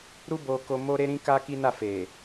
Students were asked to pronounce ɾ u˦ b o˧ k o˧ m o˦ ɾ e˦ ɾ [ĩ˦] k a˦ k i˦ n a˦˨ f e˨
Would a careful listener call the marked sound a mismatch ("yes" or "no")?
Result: no